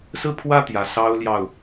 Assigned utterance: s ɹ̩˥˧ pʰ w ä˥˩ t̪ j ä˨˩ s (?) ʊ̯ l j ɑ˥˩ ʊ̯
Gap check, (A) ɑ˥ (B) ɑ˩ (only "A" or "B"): A